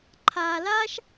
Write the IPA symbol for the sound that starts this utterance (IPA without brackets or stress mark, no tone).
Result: ǃʰ